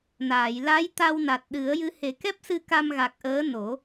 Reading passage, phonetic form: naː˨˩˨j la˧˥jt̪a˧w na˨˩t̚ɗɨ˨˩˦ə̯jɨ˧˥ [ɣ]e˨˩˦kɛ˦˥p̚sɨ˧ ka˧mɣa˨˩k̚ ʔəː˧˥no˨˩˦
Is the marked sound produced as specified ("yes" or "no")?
no